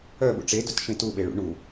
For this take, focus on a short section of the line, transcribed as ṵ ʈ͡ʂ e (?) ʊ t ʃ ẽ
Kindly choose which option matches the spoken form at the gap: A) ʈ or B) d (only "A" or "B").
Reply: B